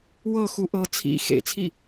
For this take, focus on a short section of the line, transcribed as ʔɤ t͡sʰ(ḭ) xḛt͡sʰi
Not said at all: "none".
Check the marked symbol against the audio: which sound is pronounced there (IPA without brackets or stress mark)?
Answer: ḭ